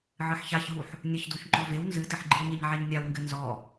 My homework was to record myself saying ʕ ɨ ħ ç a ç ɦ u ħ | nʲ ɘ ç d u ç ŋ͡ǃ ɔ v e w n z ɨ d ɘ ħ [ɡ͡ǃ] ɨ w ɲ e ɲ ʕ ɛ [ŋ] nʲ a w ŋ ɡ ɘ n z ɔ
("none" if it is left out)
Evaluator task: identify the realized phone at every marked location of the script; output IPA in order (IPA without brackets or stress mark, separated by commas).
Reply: ɡ͡ǃ, ɲ